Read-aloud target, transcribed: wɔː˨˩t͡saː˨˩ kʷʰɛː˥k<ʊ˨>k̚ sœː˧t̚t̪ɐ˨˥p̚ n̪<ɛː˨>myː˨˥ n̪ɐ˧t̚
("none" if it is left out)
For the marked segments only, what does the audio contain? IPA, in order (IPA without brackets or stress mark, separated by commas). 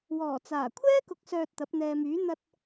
ʊ˨, ɛː˨